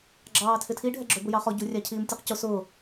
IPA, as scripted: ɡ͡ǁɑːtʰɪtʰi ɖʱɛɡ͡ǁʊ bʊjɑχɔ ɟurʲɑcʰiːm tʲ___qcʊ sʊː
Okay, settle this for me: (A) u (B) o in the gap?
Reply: A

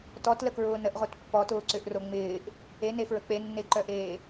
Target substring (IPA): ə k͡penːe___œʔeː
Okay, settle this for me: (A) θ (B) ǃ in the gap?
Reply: B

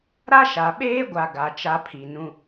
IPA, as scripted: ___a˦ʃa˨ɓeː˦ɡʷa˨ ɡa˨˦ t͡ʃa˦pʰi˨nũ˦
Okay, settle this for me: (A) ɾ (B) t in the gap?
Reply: A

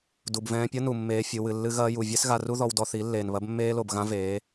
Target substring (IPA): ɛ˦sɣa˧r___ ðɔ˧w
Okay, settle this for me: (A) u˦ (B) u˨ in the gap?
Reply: A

